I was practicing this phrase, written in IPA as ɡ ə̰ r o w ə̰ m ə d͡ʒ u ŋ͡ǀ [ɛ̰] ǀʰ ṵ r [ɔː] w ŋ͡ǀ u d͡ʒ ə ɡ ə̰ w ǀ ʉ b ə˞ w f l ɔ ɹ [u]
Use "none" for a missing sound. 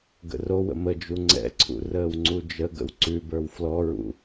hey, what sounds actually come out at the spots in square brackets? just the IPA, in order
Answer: ɛ̰, əː, ṵ

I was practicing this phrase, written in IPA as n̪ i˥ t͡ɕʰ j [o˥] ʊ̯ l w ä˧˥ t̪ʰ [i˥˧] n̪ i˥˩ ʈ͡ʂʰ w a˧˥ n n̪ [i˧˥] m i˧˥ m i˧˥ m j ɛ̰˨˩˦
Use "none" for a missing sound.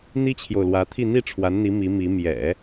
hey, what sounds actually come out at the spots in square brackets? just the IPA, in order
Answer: o˨, i˥˧, i˧˥

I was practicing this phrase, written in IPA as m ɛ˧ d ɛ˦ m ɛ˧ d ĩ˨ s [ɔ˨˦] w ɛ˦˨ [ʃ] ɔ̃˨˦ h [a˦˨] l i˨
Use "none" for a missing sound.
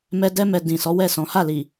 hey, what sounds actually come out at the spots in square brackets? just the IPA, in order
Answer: ɔ˨˦, s, a˦˨

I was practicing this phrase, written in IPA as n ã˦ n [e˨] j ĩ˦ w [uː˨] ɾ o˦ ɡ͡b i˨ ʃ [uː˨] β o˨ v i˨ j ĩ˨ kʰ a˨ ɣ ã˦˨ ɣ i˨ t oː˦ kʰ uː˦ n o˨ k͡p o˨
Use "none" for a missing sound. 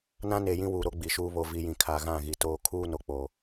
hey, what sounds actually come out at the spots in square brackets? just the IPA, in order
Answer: e˨, uː˨, uː˦

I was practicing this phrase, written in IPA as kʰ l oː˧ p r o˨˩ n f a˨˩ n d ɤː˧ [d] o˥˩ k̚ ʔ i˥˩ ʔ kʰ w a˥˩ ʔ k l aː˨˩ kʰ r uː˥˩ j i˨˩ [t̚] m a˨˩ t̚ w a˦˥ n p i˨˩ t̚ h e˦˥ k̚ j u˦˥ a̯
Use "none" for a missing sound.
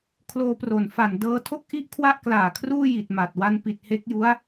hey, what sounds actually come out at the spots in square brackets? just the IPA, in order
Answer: tʰ, t̚

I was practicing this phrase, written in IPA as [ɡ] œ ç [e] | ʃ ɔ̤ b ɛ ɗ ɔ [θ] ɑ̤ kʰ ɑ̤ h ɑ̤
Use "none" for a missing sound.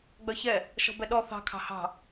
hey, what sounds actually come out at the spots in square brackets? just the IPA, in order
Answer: ɡ͡b, ɛ, θ

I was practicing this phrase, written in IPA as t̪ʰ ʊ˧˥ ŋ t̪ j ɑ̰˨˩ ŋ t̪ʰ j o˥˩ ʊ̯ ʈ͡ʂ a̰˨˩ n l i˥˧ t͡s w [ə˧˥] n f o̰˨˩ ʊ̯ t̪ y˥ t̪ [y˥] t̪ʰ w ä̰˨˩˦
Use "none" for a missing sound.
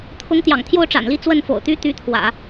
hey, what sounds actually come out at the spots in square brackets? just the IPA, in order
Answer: ə˥˩, y˧˥

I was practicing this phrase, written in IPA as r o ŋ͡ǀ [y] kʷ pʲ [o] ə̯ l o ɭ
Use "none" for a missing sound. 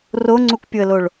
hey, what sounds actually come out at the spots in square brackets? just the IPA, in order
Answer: u, o

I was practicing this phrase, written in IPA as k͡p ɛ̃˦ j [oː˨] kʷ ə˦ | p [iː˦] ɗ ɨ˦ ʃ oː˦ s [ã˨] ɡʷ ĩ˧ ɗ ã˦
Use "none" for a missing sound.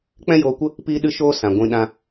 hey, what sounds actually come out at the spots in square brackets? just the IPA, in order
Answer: oː˧, iː˦, ã˨

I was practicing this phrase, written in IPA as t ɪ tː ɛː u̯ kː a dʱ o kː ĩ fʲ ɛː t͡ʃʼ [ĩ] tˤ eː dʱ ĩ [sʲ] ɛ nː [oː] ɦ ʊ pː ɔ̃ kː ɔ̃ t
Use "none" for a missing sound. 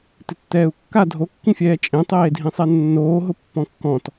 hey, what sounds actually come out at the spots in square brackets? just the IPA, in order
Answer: ẽ, sˤ, oː

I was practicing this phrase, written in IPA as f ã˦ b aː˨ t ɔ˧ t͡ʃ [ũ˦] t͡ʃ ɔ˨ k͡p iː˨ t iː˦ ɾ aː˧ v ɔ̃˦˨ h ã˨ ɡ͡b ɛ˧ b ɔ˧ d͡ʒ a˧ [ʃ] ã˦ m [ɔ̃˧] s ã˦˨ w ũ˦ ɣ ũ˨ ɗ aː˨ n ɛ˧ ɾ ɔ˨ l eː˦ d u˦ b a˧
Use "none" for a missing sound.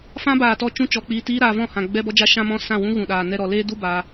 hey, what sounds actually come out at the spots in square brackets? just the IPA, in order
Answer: ũ˧, ʃ, ɔ̃˦

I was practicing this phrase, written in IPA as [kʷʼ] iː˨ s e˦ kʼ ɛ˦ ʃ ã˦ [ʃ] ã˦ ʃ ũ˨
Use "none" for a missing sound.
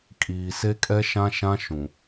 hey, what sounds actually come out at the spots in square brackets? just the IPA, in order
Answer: kʼ, ʃ

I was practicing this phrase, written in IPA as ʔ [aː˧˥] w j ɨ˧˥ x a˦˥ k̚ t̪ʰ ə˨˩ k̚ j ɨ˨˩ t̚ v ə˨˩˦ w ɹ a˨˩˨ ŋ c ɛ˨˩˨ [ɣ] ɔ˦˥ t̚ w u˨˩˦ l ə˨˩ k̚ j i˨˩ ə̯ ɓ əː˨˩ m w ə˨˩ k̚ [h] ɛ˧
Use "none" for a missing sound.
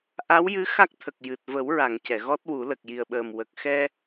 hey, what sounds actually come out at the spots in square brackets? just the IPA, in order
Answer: a˧˥, ɣ, x

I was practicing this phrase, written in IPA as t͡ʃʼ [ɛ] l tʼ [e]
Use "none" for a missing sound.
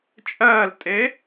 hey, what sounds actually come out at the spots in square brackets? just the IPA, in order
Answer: ɜ, e

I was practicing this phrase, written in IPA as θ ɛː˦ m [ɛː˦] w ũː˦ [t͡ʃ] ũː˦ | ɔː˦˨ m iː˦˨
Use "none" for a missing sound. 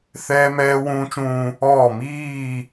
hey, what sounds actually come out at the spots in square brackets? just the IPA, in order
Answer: ɛː˦, t͡ʃ

